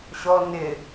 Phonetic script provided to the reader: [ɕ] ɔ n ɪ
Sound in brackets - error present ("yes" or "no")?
no